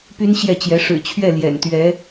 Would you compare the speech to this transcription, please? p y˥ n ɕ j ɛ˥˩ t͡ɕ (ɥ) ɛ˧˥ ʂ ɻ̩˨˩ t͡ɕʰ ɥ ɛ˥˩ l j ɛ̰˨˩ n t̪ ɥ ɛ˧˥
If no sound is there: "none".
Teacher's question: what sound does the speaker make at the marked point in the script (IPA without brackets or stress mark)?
j